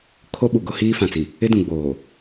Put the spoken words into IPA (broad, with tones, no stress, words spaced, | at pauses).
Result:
kʰo˦ɓu˨ɡʊ˦ hiː˦fã˨t͡si˨ | ɪ˦dũ˨ɡ͡boː˨